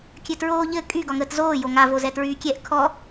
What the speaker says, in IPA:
kʲ ɘ t ɹ oː ʎ ɘ kʼ y ɡ ɒ ŋ əː t z oː j o ŋ a v o z ɛ t ɹ yː kʲ ɛ ʔ kʰ ɔ

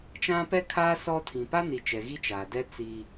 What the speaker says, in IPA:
t͡ʃ ã˦ p ɛ˦ kʰ aː˦ s ɔ˦ tʰ ĩ˨ p a˦ n i˨ t͡ʃ ɛ˨ ɣ i˦ t͡ʃ aː˨ d ɛ˦ t͡s iː˦

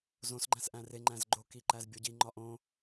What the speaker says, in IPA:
z õ s ɡ͡ǃ æ̃ s ʔ æ̃ r e ŋ͡ǃ æ̃ z ɡ͡ǃ o k i ǃ æ z bʲ o ɟ i ŋ͡ǃ ɒ ʔ õ

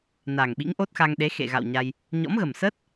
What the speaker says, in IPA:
n a˨˩ ŋ ɓ ḭ˧˥ ŋ ʔ o˦˥ t̚ x a˧ ŋ ɗ e˨˦ x ḛ˧˨ ɣ a̰˧˨ w ɲ a˧ j | ɲ ɔ̰˧˥ m ɣ ə˨˩ m s əː˦˥ t̚

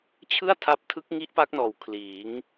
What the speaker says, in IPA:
t͡ɕʰ ɯ˥˩ a̯ tʰ a˦˥ p̚ tʰ ɯ˦˥ k̚ ŋ i˦˥ ʔ p a˦˥ k̚ n ɔː˨˩ w kʰ l iː˩˦ ŋ

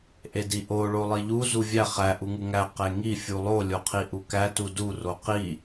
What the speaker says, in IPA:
ʔ e d i ʔ o ɭ o lˠ i ʎ u z u vʲ æ χ æ ʔ u ŋ u ŋ æ q e ŋ i fʲ u lˠ o lʲ o qʰ i ʔ u k æ t u d u r o q i

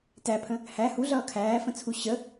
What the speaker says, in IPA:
t æ pʰ ə̃ | h æ h u ɮ ʌː kʰ æː f ə̃ t͡sʰ u ɕ ə

